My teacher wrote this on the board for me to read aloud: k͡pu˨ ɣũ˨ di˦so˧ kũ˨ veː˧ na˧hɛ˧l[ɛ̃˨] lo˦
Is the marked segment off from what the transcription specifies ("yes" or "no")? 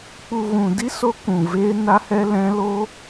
yes